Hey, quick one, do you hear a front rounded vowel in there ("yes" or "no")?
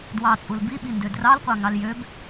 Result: yes